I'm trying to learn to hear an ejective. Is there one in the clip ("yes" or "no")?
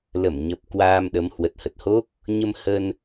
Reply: no